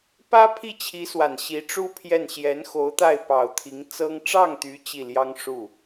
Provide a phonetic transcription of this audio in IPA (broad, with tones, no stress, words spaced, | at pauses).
pä˥pʰi˥˩t͡ɕʰi˧˥swa˨˩n ɕi˧˥ʈ͡ʂu˥pʰjɛ˥˩n ɕjɛ˧˥nxo˧˥ʊ̯t̪a˥˩ɪ̯ pɑ˨˩ʊ̯t̪ʰi˧˥ŋt͡sɤ˥ŋ ʈ͡ʂɑ˥˩ŋt̪y˧˥ t͡ɕi˥˩ljɑ˥ŋ ʂu˥˩